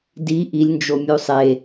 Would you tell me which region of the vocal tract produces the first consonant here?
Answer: tongue tip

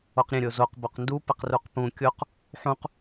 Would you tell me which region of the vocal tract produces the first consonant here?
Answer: uvula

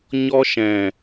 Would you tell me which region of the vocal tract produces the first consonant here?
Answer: palate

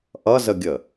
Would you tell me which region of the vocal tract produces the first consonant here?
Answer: throat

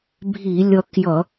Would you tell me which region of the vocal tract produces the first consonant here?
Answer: lips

